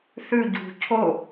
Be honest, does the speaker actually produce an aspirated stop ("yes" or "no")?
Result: yes